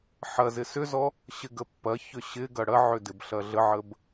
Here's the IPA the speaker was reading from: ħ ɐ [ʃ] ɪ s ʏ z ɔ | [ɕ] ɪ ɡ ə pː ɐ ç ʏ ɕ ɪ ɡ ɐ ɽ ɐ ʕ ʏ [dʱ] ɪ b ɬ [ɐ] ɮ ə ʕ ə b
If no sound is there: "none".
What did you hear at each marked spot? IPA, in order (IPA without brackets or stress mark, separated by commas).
z, ɕ, d, ɐ